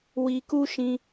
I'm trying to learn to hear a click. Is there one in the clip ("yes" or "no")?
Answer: no